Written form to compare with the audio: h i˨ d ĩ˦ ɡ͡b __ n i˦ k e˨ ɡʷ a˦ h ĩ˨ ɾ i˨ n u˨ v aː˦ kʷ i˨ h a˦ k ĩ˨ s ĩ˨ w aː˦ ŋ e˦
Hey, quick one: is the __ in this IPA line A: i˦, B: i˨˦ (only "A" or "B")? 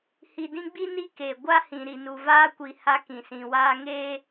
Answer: A